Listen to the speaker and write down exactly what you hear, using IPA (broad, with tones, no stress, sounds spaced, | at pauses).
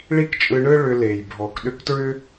ɭ i˦ k t͡ʃʼ ɯ˧ ɳ ɯ˦ ɭ ʏ˧ l e˨ j bʱ ɔ˨ k ɗ ʏ˧ k t ɹ ʏ˦